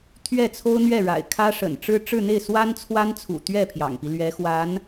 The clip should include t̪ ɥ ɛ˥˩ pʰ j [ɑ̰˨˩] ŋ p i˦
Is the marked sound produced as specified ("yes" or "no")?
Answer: yes